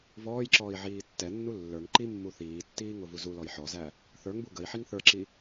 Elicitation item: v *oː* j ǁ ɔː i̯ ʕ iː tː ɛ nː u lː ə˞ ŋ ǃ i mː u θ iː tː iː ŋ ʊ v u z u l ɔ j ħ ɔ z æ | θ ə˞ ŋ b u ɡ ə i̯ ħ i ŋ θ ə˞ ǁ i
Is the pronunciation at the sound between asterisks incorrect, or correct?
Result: incorrect: ɔː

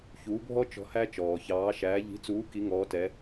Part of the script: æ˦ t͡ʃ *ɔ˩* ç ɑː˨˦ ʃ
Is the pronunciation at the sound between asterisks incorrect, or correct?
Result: incorrect: ɔː˩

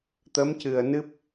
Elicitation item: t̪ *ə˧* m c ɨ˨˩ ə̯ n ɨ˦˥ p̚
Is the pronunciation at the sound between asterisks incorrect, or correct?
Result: incorrect: ə˧˥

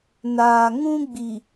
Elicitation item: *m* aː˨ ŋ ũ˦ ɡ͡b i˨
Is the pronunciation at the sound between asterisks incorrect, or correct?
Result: incorrect: n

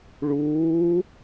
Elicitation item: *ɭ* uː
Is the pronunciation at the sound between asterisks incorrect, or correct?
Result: correct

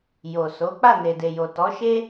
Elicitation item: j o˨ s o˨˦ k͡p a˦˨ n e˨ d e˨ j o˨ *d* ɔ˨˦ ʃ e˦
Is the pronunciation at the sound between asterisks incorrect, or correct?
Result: incorrect: t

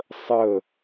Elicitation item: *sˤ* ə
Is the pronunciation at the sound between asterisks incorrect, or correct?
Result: correct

